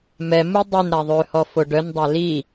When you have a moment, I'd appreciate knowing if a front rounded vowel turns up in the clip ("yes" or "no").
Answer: yes